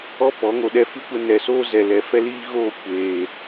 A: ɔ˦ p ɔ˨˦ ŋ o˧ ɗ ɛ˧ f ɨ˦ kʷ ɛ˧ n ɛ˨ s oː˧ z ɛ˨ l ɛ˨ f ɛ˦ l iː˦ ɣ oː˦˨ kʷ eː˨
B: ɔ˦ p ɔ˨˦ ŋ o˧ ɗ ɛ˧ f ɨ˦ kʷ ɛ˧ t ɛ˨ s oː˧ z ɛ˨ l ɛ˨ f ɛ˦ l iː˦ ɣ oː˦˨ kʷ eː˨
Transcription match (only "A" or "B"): A